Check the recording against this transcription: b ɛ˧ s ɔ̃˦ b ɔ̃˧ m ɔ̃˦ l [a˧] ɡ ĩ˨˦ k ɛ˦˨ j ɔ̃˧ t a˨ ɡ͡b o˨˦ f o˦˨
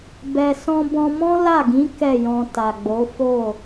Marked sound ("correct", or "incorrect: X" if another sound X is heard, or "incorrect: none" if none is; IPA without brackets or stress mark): incorrect: a˦˨